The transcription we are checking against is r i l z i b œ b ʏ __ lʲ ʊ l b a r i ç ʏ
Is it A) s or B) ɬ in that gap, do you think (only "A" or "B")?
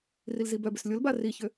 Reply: A